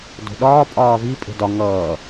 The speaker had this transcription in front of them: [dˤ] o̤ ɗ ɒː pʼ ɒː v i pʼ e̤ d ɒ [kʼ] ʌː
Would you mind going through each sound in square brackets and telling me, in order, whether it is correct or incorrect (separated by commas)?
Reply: incorrect, incorrect